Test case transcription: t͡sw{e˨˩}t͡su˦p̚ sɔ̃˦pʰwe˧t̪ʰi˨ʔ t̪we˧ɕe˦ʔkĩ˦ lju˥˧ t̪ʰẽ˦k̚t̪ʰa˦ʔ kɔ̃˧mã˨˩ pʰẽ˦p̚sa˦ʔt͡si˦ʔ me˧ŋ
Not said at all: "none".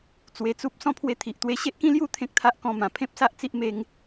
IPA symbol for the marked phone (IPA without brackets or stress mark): e˧